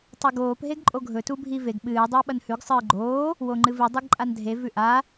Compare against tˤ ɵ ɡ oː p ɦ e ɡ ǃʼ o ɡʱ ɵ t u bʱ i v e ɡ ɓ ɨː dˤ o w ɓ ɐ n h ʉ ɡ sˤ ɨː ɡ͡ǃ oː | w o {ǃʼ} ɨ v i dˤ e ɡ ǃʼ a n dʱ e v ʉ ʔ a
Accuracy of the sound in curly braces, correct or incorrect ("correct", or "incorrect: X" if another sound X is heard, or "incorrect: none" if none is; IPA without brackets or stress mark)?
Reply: incorrect: ŋ͡ǃ